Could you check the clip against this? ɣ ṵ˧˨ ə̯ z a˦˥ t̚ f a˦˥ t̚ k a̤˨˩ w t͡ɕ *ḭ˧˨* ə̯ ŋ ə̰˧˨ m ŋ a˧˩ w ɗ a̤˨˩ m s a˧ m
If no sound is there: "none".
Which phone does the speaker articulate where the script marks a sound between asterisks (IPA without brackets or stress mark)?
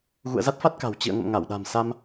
ḭ˧˨